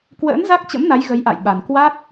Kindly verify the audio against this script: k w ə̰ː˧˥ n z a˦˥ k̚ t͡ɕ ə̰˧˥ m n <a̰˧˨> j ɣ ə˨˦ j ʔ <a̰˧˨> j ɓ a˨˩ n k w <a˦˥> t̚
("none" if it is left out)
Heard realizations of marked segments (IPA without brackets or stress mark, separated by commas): a˨˦, a̰˧˨, a˦˥